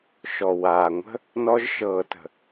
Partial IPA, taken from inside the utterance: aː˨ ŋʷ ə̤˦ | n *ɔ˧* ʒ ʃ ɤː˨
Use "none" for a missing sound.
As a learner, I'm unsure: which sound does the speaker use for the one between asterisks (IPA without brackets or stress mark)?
ɔ˧